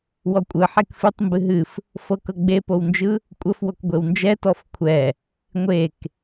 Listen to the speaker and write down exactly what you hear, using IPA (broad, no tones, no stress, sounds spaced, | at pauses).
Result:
w ɔ kʷʼ ɯ ħ e k f ɨ tˤ m b ɨ ɦ ɨ f | f ɤ k ɤ ɡ͡b e p o w n d͡ʒ ɯ | kʷʼ ə f w o k ɡʷ e w n d͡ʒ ɛ t ɔ f kʷʰ ɛ | ŋʷ e k